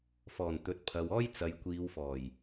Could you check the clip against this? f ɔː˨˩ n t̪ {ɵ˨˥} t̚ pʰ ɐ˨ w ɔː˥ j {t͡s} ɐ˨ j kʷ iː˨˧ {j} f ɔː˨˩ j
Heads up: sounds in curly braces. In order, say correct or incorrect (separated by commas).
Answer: incorrect, correct, incorrect